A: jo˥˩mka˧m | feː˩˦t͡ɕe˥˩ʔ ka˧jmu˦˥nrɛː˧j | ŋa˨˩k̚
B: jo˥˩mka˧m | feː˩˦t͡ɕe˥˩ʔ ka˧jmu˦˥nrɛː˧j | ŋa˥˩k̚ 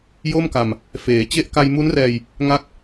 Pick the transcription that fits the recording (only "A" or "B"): B